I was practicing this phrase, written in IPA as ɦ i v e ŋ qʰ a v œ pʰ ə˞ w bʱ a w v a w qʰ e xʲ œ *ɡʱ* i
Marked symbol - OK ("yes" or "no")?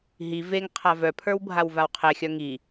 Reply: no